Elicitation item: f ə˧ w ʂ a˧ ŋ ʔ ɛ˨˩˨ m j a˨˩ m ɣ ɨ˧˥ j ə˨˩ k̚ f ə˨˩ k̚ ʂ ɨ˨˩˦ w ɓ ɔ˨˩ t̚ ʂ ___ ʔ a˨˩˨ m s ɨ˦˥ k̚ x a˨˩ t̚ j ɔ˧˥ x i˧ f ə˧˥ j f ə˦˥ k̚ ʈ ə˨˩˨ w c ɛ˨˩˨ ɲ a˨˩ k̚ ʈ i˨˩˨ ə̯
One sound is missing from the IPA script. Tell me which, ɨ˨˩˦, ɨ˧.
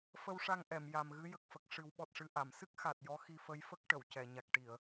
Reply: ɨ˧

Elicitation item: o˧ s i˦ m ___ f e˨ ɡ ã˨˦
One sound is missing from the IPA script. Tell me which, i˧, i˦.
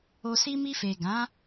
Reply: i˧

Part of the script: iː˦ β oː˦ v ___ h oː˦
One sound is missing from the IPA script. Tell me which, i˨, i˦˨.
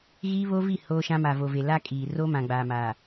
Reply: i˦˨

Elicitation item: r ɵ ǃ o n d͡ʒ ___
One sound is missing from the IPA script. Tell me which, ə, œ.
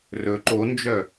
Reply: œ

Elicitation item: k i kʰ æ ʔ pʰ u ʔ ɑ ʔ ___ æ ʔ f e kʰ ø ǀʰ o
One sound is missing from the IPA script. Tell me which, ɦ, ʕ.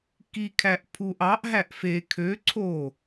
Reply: ɦ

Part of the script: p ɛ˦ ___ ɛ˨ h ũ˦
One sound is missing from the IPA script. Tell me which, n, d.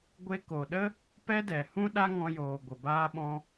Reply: d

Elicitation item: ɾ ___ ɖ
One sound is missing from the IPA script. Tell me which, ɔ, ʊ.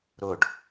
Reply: ʊ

